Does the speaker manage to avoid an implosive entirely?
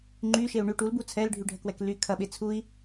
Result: no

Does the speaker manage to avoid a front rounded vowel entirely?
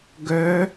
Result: no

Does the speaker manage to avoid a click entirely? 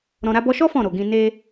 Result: yes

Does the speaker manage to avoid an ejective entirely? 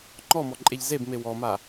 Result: no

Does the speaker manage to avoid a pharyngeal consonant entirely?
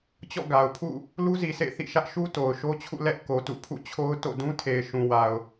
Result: yes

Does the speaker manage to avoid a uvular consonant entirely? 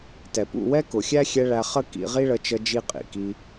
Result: no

